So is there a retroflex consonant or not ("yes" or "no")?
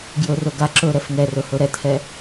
no